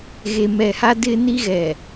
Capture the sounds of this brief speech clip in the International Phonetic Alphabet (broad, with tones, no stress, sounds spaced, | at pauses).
ɣ e˨ m ɛ˨ h a˦ d ɪ˦ n i˦ ɣ ɛ˨